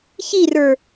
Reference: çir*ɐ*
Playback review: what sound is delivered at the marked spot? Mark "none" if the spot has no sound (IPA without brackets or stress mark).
ə˞